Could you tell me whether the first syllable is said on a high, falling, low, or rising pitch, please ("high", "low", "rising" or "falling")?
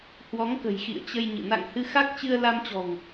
rising